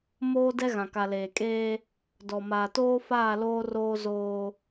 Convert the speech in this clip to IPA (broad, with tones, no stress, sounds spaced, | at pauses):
m oː˦ d ɛ˦ ɣ ã˨ k a˨ l eː˨ kʼ eː˦ | d ɔ˨ m aː˨ t oː˦ f aː˦˨ l oː˦ r oː˦ z oː˦